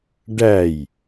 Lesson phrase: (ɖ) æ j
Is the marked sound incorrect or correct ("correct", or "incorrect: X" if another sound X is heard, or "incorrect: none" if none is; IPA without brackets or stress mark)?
correct